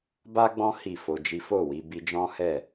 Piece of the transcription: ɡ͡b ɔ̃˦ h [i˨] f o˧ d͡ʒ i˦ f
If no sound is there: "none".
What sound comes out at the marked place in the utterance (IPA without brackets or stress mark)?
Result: i˦˨